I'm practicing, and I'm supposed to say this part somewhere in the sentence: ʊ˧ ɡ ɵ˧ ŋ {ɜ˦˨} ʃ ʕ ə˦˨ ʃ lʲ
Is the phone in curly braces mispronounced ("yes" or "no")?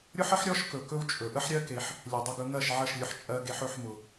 no